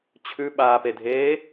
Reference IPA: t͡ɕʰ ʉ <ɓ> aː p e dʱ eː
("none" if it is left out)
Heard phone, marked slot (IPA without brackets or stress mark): ɓ